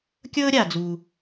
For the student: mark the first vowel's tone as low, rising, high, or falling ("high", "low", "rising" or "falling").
high